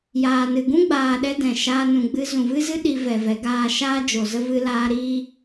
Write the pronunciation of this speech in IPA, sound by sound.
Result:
jaː˨nɨ˨ ɡũ˦ɡ͡baː˨ɗɛ˧ dɛ̃˨ʃaː˧nũ˨ ɡ͡bɨ˧zũ˨vɨ˦zɨ˦ ɗi˧vɛ˨vɛ˨˦ ɡaː˧ʃaː˦d͡ʒo˨ zə˦vɨ˦laː˦ ɾiː˦

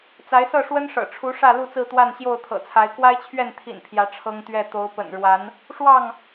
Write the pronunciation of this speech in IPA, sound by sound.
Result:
t͡sa˨˦ɪ̯sɤ˥˨ʂwə˦nʂɤ̰˨˩ ʈ͡ʂʰu˨˦ ʂä˥˨lu˥˨t͡sɹ̩˥˨t̪wa˥˨n ɕjo˥˨ʊ̯t̪ʰɤ̰˨˩t͡sʰa˨˦ɪ̯ kwa˦ɪ̯t͡ɕʰɥɛ˥˨nt̪ʰḭ˨˩n pʰjä˨˦ ʈ͡ʂʰɤ˦ŋt̪ɥɛ˥˨ t̪o˨˦ʊ̯pə̰˨˩nɻwa˨˦n | ʂwɑ˥˨ŋ

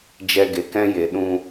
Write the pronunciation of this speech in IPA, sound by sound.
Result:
d͡ʒɛ˧ɡe˨kɛ̃˦je˨ ɗũ˧

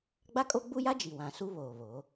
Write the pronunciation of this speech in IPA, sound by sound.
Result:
ɡ͡ba˦kʼo˦ɡ͡bu˦ja˦ d͡ʒi˨wã˨ su˦ βoː˨βoː˨˦

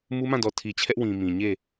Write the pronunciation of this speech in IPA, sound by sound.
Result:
mu˦mã˦˨dɔ˨ tʰi˨t͡ɕʰɛ˦ʔwĩ˨ mĩ˨ɲe˦˨

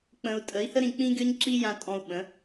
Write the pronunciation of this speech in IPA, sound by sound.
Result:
k͡pə̃˧u̯ tʼə˨˦i̯hə˦ ɾĩ˧ k͡pĩ˦ɡʲɔ˦ɲ ǁi˦jã˧ tʼɔ̃˧u̯ɓə̃˨˦

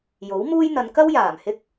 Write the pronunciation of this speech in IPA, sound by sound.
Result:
jo˨˥wmuː˥j n̪ɐ˨˧n kɐ˥w jaː˨˩m hɪ˥k̚

